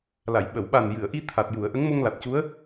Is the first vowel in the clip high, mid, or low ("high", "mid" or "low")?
low